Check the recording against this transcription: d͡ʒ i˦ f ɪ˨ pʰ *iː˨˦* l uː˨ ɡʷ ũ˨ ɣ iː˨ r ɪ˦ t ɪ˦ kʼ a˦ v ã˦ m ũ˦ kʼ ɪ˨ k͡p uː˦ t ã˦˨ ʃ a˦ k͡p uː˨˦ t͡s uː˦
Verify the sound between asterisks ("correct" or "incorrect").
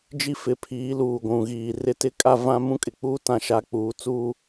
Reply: correct